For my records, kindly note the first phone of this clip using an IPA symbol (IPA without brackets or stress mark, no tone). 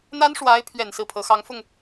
n̪